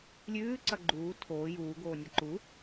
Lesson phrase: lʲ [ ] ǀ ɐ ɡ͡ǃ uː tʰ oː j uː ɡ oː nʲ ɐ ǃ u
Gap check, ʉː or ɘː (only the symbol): ʉː